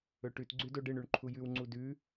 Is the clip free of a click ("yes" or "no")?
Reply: no